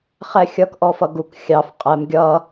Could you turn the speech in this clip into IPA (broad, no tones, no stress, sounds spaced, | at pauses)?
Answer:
χ ɛ xʲ ʌ k ʔ ɔ f ʌ ɡ u k xʲ ɑ f qʼ ɛ m ɡʲ ʌ